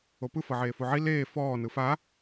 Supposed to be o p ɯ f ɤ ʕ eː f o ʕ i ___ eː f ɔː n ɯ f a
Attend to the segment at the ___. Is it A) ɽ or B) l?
B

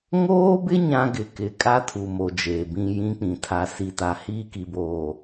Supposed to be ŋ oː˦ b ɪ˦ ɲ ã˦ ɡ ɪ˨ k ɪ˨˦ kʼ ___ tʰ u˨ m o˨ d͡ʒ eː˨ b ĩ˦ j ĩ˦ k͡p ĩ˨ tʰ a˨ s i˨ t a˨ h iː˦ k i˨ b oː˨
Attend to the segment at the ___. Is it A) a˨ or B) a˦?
B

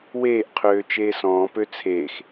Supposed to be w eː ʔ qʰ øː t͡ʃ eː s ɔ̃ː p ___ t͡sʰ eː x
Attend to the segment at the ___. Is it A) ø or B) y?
A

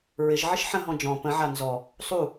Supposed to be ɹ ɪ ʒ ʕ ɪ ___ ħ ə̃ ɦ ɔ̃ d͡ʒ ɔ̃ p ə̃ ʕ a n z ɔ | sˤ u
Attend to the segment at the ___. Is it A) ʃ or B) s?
A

